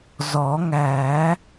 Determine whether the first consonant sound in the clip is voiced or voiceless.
voiced